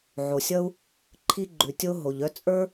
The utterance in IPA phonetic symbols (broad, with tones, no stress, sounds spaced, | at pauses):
ʕ o˩ sʲ ʌ˥ u̯ | ǃʰ i˥ ɡ͡ǃ ʉ˩ tʲ o˥ ɦ o˩ ʎ œ˥ t͡sʼ ə˞˥